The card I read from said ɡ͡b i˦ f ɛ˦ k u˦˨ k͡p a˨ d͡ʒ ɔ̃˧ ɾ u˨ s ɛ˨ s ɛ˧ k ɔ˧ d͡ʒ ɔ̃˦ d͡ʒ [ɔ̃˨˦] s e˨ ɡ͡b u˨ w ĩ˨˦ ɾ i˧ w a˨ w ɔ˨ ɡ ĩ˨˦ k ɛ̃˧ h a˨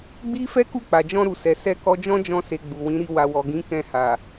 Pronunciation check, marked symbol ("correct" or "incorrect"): incorrect